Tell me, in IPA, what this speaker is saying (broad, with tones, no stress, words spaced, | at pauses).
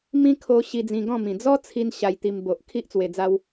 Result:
mĩ˦ kʰo˧ ɕi˧d͡zĩ˧ɡɔ̃˥˧ mĩ˨˩d͡zɔ˦t͡sʰi˧n ɕa˧jt̪i˧m bo˨ʔ kʰi˦ʔt͡swe˧d͡za˦w